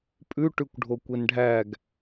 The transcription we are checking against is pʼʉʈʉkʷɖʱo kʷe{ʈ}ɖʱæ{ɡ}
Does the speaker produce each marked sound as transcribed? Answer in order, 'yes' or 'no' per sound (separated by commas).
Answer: no, yes